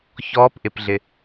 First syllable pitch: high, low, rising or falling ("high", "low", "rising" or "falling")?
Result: rising